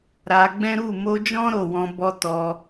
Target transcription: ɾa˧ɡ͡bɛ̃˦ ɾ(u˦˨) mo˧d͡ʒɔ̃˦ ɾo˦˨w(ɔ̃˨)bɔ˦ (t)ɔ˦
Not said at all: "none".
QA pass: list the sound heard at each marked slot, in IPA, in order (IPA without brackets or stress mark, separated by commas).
u˦˨, ɔ̃˧, t